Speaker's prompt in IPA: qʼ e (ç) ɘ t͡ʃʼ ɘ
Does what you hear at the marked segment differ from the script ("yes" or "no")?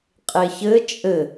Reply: no